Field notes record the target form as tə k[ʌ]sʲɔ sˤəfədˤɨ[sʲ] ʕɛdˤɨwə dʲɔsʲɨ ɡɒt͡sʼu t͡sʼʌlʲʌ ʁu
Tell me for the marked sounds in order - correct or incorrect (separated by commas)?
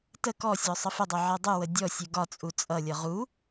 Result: incorrect, incorrect